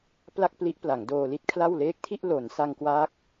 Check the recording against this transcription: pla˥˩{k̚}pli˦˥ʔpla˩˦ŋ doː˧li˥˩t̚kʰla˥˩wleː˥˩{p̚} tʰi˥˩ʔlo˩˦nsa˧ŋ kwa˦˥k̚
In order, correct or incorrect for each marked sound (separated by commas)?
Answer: correct, incorrect